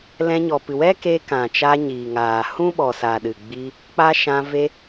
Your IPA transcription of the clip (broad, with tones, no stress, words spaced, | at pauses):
lɛ̃˧ɲɔ˨ pɨ˨wɛ˦keː˧ kã˨ t͡ʃa˧ ɲiː˨ŋaː˨ hũ˦ɓɔ˨sa˨ ɗɨ˨ɡ͡bi˧ | k͡pa˦ ʃã˧ ve˧